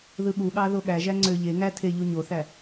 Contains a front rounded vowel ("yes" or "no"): yes